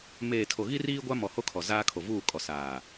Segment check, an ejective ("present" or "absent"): present